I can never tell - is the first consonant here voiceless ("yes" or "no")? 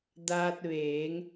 no